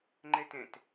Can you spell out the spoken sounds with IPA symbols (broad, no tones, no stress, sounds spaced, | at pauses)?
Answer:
ŋ͡ǃ ɛ t ɛ̃ t